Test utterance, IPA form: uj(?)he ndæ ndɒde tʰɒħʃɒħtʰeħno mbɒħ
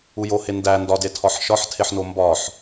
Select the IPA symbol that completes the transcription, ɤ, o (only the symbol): o